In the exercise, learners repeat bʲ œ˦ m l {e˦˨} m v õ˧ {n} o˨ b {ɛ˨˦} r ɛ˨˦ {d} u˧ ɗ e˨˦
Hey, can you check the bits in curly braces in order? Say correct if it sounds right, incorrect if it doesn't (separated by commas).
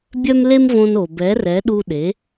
incorrect, correct, correct, incorrect